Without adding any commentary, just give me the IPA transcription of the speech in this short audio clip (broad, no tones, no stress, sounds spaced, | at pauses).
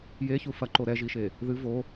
j e ç u f ɐ ǃ o ɾ ɛ ʒ i ʃ e | ð ɨ v o